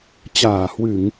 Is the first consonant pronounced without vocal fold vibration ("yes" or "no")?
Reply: yes